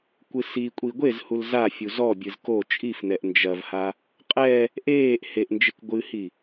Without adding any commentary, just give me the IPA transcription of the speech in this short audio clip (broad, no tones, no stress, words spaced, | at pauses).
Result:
kʷɨsikʷʼi ɡʷezhul za fʲuzɔbʲɨz ko t͡ʃʼifnɛʔ nd͡ʒɐvha | qʼɛ | ʔeːʔ heʔnd͡ʒek ɡʷɨhi